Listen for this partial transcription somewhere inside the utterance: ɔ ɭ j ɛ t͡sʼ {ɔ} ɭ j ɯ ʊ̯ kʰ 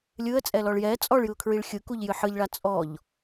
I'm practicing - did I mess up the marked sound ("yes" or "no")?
no